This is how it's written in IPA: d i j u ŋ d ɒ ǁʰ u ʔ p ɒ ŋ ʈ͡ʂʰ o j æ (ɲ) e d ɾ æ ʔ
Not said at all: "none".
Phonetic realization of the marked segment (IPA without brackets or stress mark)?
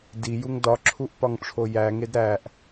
ŋ